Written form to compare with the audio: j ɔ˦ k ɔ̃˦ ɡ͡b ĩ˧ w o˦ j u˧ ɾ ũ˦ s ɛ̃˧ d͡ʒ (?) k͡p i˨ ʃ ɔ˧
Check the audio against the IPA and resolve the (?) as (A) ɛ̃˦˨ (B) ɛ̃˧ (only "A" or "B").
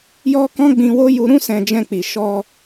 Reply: B